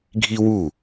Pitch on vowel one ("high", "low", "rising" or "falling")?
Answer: high